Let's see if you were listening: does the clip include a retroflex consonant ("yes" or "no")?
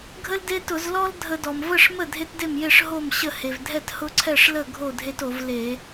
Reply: yes